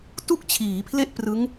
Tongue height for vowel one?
high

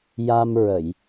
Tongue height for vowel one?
low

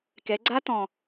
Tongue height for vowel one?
mid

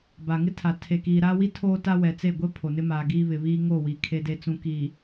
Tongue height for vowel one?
low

